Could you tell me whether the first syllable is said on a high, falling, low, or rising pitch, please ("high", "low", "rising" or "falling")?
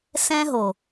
high